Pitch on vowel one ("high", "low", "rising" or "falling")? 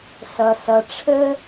low